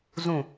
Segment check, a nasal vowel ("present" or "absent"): present